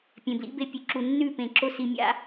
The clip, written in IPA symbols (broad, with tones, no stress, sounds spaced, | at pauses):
pʲ ẽ˨ b l ḭ˦ b e˧ pʲ ʉ˨ ǁ u˨ nː ʉ˦˨ p ẽ˨ ǁ o˧ s i˨ mʲ a̰˧